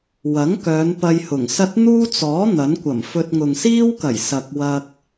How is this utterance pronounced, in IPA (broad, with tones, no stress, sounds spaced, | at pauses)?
w ɐ˨˥ ŋ k œː˨˧ n p ɐ˧ j h ʊ˨˩ ŋ s ɐ˥ t̚ n̪ uː˥ t͡s ɔː˨˥ n̪ ɐ˨˥ n kʷ ɐ˨˩ m f ɵ˧ t̚ ŋ ʊ˨ ŋ s iː˥ w k ɐ˨˩ j s ɐ˨ k̚ w ɐ˧ k̚